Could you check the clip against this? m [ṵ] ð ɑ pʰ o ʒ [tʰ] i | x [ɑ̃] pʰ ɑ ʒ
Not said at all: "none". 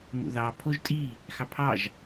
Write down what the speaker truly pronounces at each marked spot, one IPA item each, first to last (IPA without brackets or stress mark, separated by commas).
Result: ṵ, tʼ, ɑ